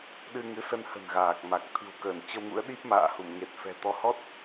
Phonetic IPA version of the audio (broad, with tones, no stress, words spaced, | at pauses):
ɗɨ˧ ŋɨ˨˦sə˧nhə̤˨˩n ɣaː˨˩k̚ma˨˩k̚ t̪ʰɨ̤˨˩wkəː˧˩nt͡ɕə˧wŋṵ˧˥ə̯ ɗi˦˥p̚ma̰ː˧˨hu˧˩m ŋe˨˩t̚fɛ̤˨˩t̪ɔ˧ hɔ˦˥t̚